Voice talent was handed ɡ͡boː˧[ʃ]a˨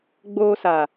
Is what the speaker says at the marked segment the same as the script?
no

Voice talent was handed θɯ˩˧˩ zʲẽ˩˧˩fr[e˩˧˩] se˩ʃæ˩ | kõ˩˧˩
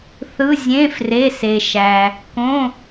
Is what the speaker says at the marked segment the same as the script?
yes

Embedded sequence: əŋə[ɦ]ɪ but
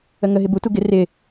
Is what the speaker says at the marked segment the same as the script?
yes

